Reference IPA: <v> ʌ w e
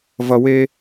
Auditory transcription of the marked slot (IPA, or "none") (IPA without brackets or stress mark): v